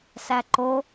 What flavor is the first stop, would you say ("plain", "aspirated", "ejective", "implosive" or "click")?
click